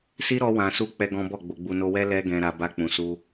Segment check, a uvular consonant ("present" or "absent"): absent